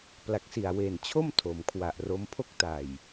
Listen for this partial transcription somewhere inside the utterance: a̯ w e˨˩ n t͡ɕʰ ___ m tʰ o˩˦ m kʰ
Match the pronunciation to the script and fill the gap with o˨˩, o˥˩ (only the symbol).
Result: o˥˩